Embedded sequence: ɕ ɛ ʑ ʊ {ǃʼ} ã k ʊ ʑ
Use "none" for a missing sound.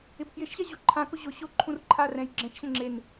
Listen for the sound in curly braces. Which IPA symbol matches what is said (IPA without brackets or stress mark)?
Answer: ǃʰ